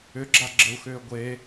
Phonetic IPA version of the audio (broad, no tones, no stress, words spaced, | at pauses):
ʏɡ͡ǁaɡ͡ǁəu̯xʏː ɡʷe